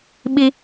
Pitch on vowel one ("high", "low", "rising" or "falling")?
high